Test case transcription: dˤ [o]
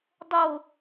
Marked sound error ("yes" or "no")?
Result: no